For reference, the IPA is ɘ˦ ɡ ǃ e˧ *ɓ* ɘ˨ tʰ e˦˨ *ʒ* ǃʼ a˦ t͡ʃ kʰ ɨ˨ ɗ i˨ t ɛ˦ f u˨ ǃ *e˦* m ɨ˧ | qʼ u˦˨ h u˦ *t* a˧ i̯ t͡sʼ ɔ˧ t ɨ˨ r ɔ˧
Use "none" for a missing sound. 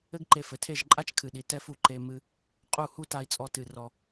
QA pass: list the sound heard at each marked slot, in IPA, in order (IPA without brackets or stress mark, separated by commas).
f, ʒ, e˧, t